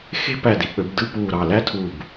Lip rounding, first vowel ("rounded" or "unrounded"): unrounded